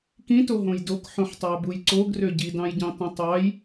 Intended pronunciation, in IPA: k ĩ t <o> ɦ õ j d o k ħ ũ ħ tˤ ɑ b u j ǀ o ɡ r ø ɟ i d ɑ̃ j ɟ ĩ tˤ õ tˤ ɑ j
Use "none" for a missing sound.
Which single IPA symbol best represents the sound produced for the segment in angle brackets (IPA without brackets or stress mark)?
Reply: o